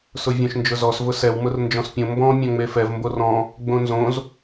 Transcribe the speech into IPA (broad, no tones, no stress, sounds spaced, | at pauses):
s ʊ vʲ õ ʃ n d͡ʒ ʊ z ɔ s v ʊ s ɛ w m ʊ r n d͡ʒ ɔ̃ s pʲ õ m b ɔ̃ mʲ ɔ̃ ŋ͡m e f ɛ v m b o r ɔ̃ | ɡ͡b õ n z õ z